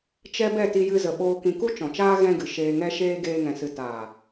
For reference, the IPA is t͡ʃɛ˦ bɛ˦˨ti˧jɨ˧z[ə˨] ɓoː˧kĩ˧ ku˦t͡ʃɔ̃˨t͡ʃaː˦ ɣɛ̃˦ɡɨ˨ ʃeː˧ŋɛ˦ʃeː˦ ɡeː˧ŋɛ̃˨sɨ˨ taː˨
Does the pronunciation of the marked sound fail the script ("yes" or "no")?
no